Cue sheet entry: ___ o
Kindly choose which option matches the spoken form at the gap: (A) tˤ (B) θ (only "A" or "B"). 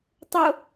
A